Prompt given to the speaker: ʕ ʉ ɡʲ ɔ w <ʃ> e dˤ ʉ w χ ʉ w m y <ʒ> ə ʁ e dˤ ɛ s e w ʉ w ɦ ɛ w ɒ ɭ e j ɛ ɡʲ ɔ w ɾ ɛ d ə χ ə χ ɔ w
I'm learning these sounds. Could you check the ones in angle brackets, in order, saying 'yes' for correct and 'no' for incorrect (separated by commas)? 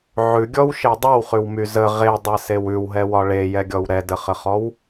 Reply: yes, no